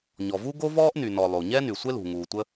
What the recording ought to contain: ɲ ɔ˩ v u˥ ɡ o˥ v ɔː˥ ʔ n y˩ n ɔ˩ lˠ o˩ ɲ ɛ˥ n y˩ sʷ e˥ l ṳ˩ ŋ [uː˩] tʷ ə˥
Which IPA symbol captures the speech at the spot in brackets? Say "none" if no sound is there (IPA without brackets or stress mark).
uː˩